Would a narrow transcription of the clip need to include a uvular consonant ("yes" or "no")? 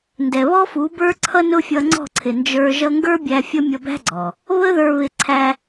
no